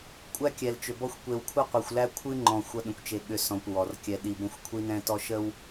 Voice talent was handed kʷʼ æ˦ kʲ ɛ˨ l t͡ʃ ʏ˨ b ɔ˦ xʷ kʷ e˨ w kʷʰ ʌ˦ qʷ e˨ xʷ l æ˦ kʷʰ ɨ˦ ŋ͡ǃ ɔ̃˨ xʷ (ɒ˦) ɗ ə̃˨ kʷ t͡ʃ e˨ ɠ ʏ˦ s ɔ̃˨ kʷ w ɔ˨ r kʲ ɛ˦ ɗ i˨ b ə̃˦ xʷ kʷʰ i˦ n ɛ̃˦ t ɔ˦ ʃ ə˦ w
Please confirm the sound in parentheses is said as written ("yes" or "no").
no